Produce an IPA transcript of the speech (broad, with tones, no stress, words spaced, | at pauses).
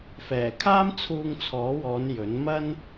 fɛː˨˩ kʰaː˥mt͡sʰuː˧ŋt͡sʰɔː˨˥wɔː˨˧n jɵ˨˥nmɐ˥n